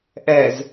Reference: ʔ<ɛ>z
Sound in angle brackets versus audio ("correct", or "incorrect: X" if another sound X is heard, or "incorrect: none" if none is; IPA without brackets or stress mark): correct